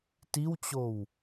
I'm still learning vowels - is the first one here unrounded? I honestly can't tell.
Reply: yes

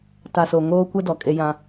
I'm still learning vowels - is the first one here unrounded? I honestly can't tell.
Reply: yes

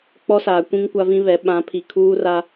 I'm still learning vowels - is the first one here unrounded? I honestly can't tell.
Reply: no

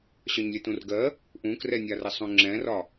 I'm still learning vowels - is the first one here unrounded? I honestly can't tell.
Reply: no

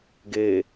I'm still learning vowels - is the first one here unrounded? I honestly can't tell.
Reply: yes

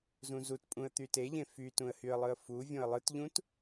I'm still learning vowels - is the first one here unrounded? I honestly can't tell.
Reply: no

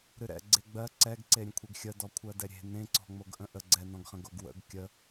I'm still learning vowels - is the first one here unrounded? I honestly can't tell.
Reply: yes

